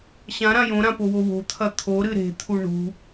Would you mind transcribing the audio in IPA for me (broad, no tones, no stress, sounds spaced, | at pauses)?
ɕ ã ɾ ã j õ ɾ ã p o w o w o̤ t̪ʰ ɐ t̪ʰ o ɾ ɨ ɾ e̤ t̪ʰ u ɳ ṳ